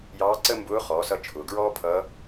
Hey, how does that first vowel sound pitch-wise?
rising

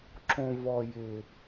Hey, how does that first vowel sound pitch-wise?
low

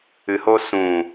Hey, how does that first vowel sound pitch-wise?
low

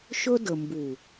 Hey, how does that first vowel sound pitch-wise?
high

